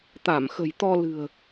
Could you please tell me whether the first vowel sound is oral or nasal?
oral